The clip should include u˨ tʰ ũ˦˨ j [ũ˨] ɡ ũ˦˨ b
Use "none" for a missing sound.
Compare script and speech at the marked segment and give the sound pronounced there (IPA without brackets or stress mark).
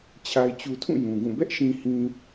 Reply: ũ˨